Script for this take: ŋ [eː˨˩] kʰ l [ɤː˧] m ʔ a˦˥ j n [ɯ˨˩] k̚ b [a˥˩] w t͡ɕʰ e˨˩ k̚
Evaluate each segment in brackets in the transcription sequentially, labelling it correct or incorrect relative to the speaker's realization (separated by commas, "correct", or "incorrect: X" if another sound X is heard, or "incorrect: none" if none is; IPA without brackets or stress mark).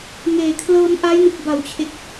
correct, correct, correct, incorrect: a˩˦